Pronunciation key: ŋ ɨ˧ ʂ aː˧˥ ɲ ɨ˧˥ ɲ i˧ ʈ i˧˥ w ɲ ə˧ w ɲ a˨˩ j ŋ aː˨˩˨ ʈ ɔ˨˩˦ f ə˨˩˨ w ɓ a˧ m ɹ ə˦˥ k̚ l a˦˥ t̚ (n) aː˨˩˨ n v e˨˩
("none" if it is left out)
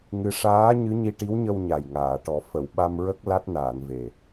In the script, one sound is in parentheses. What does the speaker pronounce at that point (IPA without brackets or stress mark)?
n